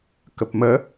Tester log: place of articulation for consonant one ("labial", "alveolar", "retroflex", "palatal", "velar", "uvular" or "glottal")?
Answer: velar